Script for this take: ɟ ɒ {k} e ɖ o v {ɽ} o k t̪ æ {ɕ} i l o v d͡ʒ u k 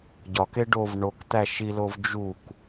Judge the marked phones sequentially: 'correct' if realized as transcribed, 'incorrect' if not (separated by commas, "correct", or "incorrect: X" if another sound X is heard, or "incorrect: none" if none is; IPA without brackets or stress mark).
correct, incorrect: ɳ, incorrect: ʃ